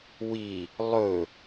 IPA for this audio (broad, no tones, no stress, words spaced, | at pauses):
wi | lˠɵ